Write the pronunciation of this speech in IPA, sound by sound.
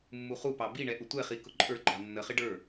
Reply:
mː u χ u p ɑ b i ɳ ɛ ʔ ʊ tʷ ɛ χ i k ʊ ǃʼ ə˞ ɡ͡ǃ ɑ nː ə χ ɪ ɖ ə˞

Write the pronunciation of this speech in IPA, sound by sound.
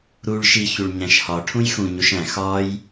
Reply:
ɾ u ɭ ʃ i ç u ɭ ɲ æ̃ ʃ h ɒ ʈʰ ũ j x ũ ɲ u ʃ æ̃ x ɒ j

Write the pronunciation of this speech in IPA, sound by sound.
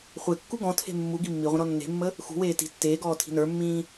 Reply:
χʷ e kː u ɡ ɔ̃ tʰ e̤ mː u ɡ i mː i ʁʷ ə̃ ɾ ɔ nː e̤ mː ə | x ṳ w eː t i̤ tː eː ɡ ɔː tʰ i̤ n ə˞ mː ĩː

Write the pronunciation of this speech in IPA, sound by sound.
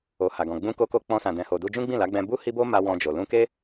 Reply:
o˨ h a˨ ɡ ɔ̃˨ ɡ͡b ũ˧ k o˧ k o˧ k͡p ɔ̃˧ s ã˨ d ɛ̃˨ h o˨ d u˧ d͡ʒ ũ˦ ɡ͡b ĩ˦˨ l a˨˦ ɡ͡b ɛ̃˧ b u˦ h i˦ b o˦ m a˧ w ɔ̃˧ d͡ʒ o˨ l ũ˧ k e˦

